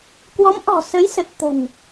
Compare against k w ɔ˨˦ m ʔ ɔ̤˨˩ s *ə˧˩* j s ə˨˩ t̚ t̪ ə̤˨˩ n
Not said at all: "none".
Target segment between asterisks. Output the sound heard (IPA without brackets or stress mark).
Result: ə˨˦